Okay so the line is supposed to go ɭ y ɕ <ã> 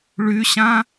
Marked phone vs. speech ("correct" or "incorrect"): correct